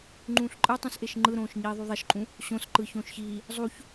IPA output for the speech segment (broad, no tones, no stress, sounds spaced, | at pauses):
ŋ͡ǃ ũː ɬ ǃʼ ɯ tˤ ũ s ʔ e ʃ ŋ͡ǃ ɯ ɾ õː ʃ ɲ iː ðˤ y ðˤ e ʃ ǃʼ ũ | ɕ õ s ǃ ɯ ç õː ʃ ç iː | zˤ u ç